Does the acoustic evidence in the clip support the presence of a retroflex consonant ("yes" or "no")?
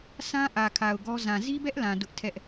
no